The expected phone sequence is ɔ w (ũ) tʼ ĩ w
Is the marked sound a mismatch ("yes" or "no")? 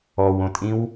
yes